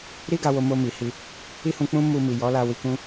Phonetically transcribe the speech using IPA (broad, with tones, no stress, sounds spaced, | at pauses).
ɾ i˦ ɡ a˧ w o˧ m o˧ m i˨ h i˧ | i˦ h ũ˧ k͡p ũ˦ m u˧ m i˨ j ɔ˨˦ l a˧ w i˧ k ũ˦